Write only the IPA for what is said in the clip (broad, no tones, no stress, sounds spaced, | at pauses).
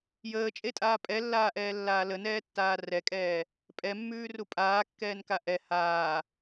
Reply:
j əː t͡ʃʼ e tʼ aː pʼ ɛ lː aː ʔ ɛː lː aː l ə n ɛː tː aː r ɛ kʼ ɛː | pʼ ɛ mː ʉː r u pʼ aː kː ɛː n k a ʔ ɛ h aː